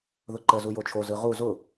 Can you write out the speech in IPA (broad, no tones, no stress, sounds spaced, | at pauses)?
ð ʊ ǃ ə z u j o t͡ʃʰ o z ɯ ʁ u z ʊ